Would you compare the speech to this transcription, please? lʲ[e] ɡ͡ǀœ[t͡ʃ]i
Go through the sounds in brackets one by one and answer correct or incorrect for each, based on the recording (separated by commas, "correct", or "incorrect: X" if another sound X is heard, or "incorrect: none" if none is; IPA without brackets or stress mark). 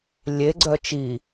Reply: correct, correct